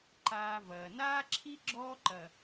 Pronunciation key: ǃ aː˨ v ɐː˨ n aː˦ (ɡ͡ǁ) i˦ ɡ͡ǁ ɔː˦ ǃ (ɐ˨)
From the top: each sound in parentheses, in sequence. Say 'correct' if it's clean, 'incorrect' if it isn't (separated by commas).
incorrect, correct